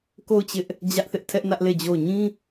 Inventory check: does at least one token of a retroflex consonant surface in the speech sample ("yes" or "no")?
no